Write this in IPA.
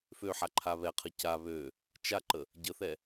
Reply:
føħaǃʰa βɛqʰə ca βø | t͡ʃaǃə | ɟəθɛ

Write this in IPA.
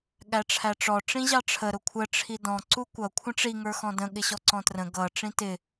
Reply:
ɠæʈ͡ʂʰæʈ͡ʂɔ ʈ͡ʂĩʑɑʈ͡ʂʰə ɾʊkʷʰə ʈ͡ʂʰidɔ̃ ǀukʷʌ kʷʰə̃ʈ͡ʂi ŋə˞xɔ̃də̃ ɠɪɕɔǀɔ̃trə̃ ɡʌ ʈ͡ʂĩtɪ

